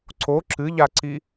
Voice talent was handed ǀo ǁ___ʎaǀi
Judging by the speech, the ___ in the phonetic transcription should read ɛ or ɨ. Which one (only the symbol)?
ɨ